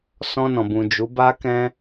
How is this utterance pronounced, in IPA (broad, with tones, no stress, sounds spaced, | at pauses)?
s ɔ̃˧ n ɔ̃˨ b ũ˨ d͡ʒ u˨˦ b a˦ k ɛ̃˦